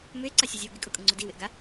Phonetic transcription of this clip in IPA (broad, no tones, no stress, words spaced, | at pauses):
mʏe̯ǀasʲuzʲɐo̯ ɡɪkʼʊkʼʊŋ͡ǀʊ diwɪʔɡa